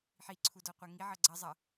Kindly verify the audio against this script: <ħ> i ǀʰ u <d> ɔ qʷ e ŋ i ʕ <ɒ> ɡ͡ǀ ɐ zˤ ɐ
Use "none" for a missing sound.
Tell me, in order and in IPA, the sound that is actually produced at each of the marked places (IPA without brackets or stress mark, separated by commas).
ħ, d, ʌ